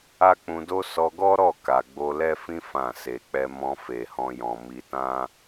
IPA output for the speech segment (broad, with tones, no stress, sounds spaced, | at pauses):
a˦ k͡p ũ˧ d o˦ s ɔ˧ ɡ ɔ˦ ɾ ɔ˦˨ k a˨ ɡ͡b o˧ l ɛ˦ f ĩ˦ f ã˦˨ s e˧ k͡p ɛ˦ m ɔ̃˧ f e˨ h ɔ̃˧ j ɔ̃˨ m i˧ t ã˦